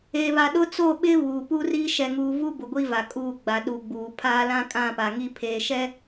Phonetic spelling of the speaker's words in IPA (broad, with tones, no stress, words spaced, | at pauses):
eː˨βa˨ ɗʊ˦t͡so˦˨ɓɪ˦ βuː˨pu˦riː˦ ʃɛ˨ŋuː˨ vu˦ bʊ˨ ɡʷi˦va˨kʼuː˦˨ ɡ͡ba˨ɗu˨ɡ͡buː˨ pʰaː˦lã˦ kʼã˦˨pa˨ ŋi˦pʰeː˨ʃɛ˦